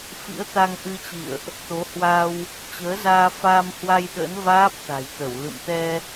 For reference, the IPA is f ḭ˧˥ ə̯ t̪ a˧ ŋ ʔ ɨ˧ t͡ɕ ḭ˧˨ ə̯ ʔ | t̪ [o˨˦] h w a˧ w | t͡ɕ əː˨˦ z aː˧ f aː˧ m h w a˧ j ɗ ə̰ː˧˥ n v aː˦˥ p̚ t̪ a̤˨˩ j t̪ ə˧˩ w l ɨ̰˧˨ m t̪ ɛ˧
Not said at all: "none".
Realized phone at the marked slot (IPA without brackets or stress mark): o˨˦